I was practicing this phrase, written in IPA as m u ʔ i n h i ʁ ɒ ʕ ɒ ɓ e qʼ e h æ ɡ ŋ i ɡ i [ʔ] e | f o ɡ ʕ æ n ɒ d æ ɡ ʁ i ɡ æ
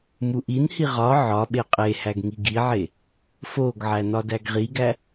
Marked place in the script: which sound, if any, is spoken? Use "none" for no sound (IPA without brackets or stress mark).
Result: ʕ